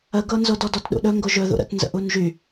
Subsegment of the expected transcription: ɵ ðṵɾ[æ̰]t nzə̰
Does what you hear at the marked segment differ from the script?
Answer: yes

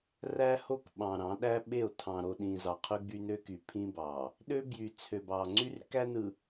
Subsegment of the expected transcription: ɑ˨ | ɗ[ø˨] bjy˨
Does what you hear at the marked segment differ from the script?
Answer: yes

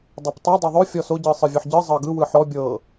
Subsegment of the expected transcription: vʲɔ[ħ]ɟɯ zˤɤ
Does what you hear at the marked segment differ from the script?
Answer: no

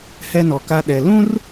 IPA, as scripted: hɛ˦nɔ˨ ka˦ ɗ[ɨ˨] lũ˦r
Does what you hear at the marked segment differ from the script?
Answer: yes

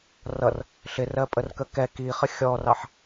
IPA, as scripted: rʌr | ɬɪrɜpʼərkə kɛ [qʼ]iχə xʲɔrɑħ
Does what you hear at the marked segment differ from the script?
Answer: yes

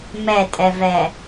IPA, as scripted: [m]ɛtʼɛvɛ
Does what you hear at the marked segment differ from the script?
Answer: no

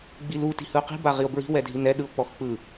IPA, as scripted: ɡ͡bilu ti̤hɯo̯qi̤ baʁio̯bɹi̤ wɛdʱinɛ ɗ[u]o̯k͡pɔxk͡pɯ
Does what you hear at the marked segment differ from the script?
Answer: yes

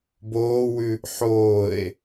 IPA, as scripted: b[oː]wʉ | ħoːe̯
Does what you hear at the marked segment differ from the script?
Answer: no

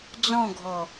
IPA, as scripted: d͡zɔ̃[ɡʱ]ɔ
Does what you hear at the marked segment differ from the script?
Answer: no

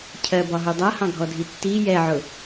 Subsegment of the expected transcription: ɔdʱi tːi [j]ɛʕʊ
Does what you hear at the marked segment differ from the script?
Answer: no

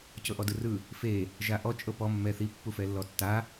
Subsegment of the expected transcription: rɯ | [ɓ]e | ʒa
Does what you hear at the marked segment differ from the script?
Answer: yes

